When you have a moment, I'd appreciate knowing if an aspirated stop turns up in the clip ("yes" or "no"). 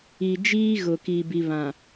no